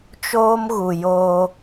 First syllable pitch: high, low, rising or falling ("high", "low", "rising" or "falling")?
high